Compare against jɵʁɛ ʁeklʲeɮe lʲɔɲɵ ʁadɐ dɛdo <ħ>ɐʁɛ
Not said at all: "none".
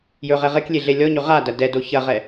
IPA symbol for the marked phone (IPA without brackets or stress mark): ç